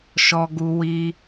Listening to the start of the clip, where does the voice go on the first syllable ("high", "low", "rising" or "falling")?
high